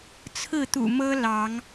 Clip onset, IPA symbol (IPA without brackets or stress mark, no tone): t͡sʰ